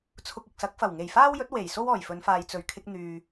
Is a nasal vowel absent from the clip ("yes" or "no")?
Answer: yes